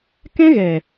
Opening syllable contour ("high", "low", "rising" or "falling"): high